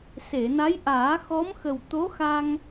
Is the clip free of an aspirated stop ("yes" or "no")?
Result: yes